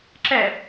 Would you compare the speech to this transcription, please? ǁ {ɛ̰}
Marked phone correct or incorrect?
incorrect